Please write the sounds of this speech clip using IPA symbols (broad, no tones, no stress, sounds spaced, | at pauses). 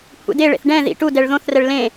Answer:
kʷʰ ḛ d e ɭ ḛ θ ɖ ɛ̃ ð ḭ ʈ u d ɛ ɭ ð õ θ r ɛ ɭ l ẽ